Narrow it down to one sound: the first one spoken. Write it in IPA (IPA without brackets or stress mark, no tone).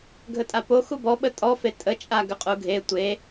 ɡʱ